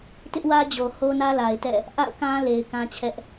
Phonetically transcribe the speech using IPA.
t ɪ˦ ʔ w ä˦ d͡ʑ o˨ h o˦ n ä˦ l a˨ ɪ̯ t ɛ̰˦˨ | ʔ a̰˦˨ ʊ̯ k ã˦ l e˨ ɪ̯ k ã˦ t͡ɕʰ ɛ˦ ʔ

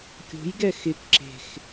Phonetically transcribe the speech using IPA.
kʲ o̤ j ɡ ɛ x ɪ k ǁ e̤ x

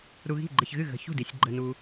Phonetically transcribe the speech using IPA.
ɾ u˧ ɣ i̤˥˨ ɡ͡ǃ ə˧ ç ɣ ɨ˥˨ ɣ ə̤˧ ç ṳ˥˨ d i˧ sʲ ɡ͡ǃ ə˧ n u˧

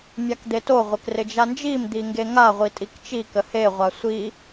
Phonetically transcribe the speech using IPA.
mʲ a k d̪ e t o ʁʷ ɪ k r ɪ d͡ʒ a n d͡ʒ i m d̪ i ŋ ɡ e ŋ a ʁʷ i tʼ i k t͡ʃ i k ə h e ʁʷ a sʷ i

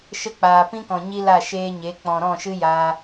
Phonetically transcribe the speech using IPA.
ʃ ə˧ k͡p aː˨ p ĩ˦ k ɔ̃˨ ɲ i˦ l a˦˨ ʃ eː˦ ɲ e˨˦ k͡p ɔ̃˨ ɾ ɔ̃˦˨ ʃ ɨ˦ j aː˧

